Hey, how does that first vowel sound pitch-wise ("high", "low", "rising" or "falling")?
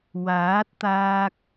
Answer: rising